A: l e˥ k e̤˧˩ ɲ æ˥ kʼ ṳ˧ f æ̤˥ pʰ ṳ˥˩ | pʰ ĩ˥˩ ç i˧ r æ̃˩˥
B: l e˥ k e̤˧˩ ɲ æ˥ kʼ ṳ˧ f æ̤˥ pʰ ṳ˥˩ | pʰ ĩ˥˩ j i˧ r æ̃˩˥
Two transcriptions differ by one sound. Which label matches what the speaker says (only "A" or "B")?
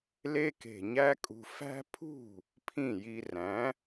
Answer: B